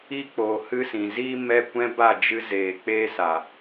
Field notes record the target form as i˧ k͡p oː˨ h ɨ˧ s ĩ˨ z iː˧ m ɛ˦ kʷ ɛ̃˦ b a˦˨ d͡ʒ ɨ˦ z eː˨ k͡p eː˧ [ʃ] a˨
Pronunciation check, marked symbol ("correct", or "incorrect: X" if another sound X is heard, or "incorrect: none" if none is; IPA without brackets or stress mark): incorrect: s